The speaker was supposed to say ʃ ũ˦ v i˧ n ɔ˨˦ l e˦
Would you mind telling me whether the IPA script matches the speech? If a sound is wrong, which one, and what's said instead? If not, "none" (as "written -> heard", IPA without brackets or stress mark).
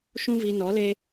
none